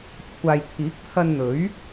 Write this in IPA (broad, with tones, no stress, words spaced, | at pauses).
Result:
kʷʰaː˨jt̪ʰiː˨˥k̚pʰɐ˧nn̪ɵ˨˥ɥ